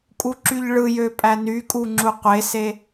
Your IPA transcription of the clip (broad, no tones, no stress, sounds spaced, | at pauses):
kʼ u ǁ y ʎ ɭ ɯ j ø pʼ æ n y kʼ u ŋ͡ǁ u qʷ e s e